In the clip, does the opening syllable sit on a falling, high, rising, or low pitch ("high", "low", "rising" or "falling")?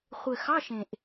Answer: low